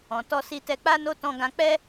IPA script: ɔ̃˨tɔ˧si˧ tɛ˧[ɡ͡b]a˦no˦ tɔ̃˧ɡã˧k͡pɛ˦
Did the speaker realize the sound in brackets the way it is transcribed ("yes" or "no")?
no